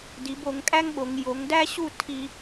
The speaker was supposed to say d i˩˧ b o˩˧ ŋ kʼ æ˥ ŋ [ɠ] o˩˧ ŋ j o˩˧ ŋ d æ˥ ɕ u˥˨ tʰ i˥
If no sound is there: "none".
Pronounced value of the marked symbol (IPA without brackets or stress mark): ɠ